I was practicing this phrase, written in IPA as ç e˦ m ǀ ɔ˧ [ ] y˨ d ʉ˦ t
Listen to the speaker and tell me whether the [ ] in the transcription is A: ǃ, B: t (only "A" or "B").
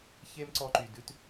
A